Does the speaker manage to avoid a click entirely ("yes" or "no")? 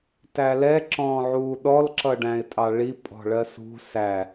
no